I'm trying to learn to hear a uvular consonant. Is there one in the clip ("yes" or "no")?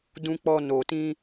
no